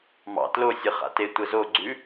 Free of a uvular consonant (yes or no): no